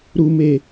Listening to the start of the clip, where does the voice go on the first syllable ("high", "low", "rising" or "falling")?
high